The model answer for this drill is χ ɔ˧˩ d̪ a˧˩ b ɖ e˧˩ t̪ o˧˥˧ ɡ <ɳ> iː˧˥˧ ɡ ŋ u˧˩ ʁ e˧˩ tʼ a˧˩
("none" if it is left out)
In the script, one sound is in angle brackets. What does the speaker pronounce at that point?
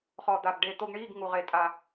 ɳ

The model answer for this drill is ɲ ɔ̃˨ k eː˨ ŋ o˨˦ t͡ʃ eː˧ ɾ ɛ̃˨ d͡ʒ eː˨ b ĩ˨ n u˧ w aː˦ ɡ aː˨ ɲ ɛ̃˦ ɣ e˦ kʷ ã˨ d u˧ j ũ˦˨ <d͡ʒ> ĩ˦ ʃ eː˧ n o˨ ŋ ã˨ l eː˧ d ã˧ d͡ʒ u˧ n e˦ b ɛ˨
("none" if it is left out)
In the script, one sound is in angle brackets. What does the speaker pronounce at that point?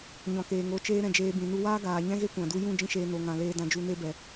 d͡ʒ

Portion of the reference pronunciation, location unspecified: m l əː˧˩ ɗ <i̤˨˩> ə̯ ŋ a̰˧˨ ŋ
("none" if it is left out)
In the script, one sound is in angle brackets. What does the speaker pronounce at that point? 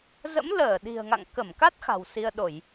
i̤˨˩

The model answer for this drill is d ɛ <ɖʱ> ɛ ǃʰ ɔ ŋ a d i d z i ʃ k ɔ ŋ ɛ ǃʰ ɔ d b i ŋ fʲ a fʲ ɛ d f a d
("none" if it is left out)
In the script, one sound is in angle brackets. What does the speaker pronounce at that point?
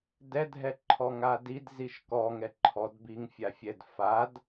dʱ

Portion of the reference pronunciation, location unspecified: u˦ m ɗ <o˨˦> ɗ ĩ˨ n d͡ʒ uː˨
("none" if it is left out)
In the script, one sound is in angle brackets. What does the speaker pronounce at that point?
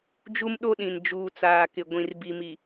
o˦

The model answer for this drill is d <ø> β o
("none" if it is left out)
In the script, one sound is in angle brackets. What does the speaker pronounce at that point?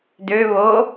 ø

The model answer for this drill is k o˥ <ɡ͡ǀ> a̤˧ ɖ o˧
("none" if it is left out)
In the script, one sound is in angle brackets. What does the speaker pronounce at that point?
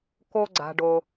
ɡ͡ǀ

